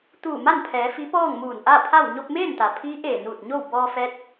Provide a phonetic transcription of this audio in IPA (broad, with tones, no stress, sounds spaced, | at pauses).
t̪ uː˧˩ m a˥˨ n pʰ ɛː˩˧ f i˧˥ p ɔː˥˨ ŋ m uː˧˩ n ʔ a˥˨ pʰ a˥˨ w ɲ o˧ p̚ m eː˥˨ n t̪ a˩ pʰ iː˧˥ ʔ eː˧˩ n uː˧˩ t̚ ɲ o˥˨ w b ɔː˧ f ɛː˧˥ t̚